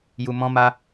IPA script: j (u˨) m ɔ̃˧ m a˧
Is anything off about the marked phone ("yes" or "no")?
no